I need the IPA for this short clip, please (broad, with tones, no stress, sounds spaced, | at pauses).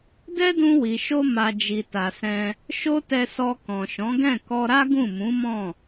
d ɛ˦ d ũ˧ w i˨ ʃ o˧ m a˨ d͡ʒ i˨ t a˨ s ɛ̃˧ | ʃ o˦ t ɛ˧ s ɔ˧ k ɔ̃˨ ʃ ɔ̃˨˦ ɡ ɛ̃˦˨ k ɔ˧ ɾ a˦ ɡ ũ˦˨ m ũ˨˦ m ɔ̃˦˨